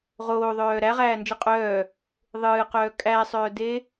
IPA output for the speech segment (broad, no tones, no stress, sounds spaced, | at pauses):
ʁ oː ðˤ œː ɾ æ ʁ æː n d͡ʒ ɨ qʼ œː | ðˤ ɨː q œː kʼ æ sˤ œː d e